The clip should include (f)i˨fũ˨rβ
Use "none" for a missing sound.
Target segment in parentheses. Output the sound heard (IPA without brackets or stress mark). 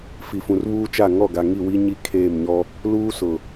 f